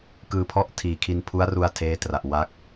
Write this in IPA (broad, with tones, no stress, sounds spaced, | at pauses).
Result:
k ɯː˧ pʰ ɔ˥˩ ʔ tʰ iː˨˩ kʰ i˧ n pʰ u˦˥ a̯ r u˧ a̯ tʰ eː˦˥ t r a˨˩ ʔ w a˦˥ k̚